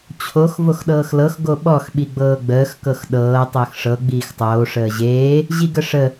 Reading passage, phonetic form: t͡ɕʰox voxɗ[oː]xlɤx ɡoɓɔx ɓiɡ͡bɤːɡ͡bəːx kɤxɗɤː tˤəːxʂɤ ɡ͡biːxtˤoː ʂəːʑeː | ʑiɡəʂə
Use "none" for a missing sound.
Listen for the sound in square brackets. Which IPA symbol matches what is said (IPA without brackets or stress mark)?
ɤː